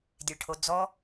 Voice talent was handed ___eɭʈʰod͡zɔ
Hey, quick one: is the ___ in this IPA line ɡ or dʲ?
dʲ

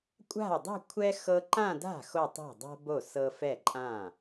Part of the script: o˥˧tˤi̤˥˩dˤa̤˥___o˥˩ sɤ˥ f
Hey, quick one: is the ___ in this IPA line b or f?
b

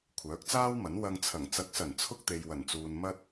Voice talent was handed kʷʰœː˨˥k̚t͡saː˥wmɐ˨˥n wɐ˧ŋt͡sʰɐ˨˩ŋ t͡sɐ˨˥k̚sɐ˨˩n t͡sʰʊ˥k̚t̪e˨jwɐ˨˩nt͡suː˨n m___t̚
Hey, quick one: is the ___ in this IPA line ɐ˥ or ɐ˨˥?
ɐ˥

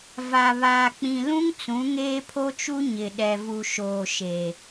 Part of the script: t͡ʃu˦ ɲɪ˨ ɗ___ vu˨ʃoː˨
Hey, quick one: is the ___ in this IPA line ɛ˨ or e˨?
ɛ˨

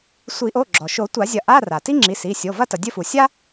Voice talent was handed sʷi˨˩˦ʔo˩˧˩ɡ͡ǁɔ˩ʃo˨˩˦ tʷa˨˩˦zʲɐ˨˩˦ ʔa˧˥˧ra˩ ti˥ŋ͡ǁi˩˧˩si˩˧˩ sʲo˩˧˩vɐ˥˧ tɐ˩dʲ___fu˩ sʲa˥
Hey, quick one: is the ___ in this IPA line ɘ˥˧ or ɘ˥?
ɘ˥˧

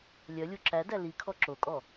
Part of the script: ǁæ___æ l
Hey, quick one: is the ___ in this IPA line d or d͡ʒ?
d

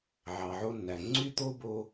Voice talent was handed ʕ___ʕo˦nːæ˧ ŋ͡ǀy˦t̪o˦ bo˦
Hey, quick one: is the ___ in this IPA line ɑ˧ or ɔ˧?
ɑ˧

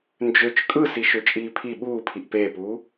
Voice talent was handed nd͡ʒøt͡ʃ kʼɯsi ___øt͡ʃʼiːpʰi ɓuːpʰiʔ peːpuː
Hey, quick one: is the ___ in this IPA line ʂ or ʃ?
ʃ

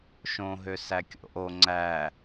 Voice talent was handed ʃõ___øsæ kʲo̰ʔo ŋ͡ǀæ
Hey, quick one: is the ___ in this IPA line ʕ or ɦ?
ɦ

